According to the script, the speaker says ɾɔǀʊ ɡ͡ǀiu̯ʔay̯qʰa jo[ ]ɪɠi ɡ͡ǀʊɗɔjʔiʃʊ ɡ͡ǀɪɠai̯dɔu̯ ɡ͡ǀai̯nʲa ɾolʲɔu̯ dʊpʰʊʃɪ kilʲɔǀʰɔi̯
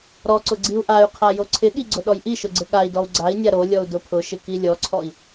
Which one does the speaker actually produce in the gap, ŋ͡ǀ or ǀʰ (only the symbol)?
ǀʰ